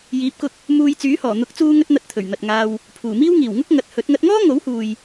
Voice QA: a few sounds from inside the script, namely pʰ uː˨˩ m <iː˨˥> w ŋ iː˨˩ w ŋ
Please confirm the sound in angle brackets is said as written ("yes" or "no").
no